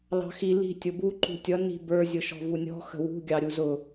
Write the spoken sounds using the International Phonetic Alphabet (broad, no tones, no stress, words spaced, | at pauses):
lɑ̤xi li̤ tʲʊbu ǃṳtʲʌ ni̤bə˞ zʲʊʃɔ̤vunʲɔ̤ xə̤wṳ ɡʲɑɾʲuzʊ